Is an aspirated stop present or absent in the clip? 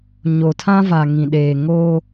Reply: present